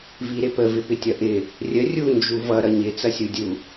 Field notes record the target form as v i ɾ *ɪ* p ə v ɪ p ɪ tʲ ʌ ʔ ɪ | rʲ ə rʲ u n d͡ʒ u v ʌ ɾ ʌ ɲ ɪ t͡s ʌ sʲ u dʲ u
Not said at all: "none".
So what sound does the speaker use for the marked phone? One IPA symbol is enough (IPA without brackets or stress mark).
ɪ